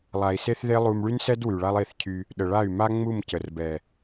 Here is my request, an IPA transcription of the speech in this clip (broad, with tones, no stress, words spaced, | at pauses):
lˠa˨i̯se˦θðe˦ lˠu˧m ɭy˦nsɛ˦d wy˨ɭa˦lˠe˦˨θcʰy˧ | ɗə˨ɭa˦˨y̯ma˦ ŋ͡mu˦˨mcə˨rbɛ˨